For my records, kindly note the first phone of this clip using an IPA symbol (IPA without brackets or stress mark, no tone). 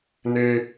n